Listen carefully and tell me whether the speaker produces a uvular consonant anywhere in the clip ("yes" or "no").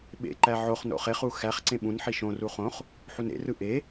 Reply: yes